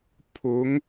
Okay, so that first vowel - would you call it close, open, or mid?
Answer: close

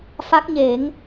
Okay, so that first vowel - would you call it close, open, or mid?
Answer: open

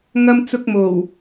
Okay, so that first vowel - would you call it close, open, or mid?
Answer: open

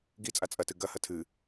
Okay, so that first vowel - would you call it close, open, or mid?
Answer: close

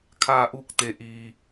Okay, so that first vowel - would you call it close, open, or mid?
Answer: open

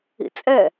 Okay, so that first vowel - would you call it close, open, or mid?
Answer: close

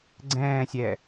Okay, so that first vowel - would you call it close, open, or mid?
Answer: mid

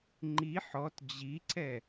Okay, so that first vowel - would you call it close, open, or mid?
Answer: close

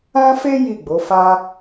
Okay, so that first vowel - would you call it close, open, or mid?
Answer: open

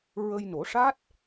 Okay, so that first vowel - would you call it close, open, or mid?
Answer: mid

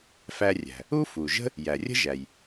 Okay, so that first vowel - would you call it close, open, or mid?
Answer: open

